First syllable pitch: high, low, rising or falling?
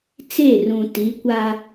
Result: falling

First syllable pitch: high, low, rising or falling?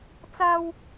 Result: high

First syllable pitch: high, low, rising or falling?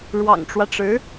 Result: low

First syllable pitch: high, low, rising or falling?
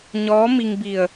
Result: rising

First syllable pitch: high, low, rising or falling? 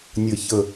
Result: low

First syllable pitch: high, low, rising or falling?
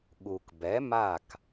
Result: low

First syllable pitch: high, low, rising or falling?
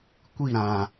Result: falling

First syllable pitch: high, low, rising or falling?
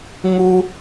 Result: high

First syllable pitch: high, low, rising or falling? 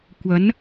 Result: rising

